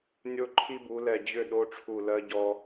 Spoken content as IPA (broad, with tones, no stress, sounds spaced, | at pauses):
nʲ o˥ ǃʰ i˥ b u˨˥ l ɛ˦˨ d͡ʑ ʏ˦˨ ɗ o˧˥˧ ʈ͡ʂʰ u˦˨ l ɜ˥ ɟ ɔ˥